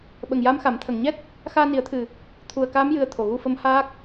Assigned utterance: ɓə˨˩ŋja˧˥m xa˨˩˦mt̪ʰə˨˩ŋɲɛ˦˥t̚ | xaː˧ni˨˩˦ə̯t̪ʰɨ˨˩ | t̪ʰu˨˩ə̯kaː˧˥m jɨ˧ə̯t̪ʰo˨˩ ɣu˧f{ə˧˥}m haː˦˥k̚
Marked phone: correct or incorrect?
correct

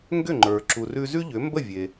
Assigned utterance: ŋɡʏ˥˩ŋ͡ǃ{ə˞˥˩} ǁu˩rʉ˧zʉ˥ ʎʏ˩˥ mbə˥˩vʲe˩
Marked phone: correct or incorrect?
incorrect: ə˞˩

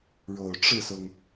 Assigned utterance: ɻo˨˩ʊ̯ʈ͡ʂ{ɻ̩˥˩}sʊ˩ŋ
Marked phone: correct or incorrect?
correct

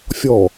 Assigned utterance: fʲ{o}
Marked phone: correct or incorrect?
incorrect: ɔ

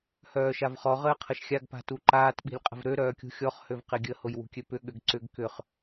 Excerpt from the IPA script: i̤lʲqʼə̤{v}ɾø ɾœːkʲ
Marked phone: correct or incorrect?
correct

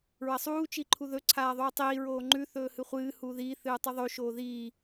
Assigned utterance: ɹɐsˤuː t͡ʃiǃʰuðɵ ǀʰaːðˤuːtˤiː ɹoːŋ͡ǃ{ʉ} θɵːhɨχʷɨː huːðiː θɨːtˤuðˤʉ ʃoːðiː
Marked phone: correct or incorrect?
correct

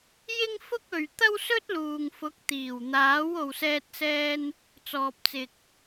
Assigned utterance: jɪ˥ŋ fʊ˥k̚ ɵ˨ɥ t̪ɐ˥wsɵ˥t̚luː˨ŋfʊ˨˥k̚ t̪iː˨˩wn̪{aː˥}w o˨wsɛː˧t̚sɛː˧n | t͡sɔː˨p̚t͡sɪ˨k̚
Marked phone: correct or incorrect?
incorrect: aː˨˥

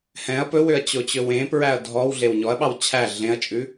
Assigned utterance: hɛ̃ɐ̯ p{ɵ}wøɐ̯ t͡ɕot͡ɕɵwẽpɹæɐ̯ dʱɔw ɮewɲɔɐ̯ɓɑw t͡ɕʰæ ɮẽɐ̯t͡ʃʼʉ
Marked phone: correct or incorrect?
correct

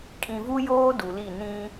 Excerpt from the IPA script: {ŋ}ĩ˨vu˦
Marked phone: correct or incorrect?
incorrect: kʼ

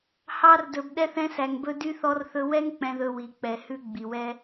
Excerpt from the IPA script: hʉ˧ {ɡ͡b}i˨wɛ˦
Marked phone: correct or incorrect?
correct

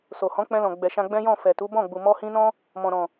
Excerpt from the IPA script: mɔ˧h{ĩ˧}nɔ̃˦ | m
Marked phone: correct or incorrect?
correct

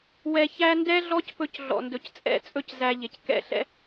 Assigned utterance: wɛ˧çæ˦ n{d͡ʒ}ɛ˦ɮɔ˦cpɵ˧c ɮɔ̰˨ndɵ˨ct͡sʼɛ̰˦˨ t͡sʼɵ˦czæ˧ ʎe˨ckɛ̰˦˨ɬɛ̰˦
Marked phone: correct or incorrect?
incorrect: d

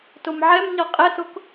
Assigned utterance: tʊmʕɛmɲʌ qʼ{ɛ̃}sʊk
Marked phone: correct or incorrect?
incorrect: ɛ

